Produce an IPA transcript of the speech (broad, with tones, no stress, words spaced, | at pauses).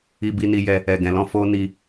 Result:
i˧bi˧ ni˧jɛ˧ | ɛ˨ɡɛ̃˨lɔ̃˧ fo˦ni˧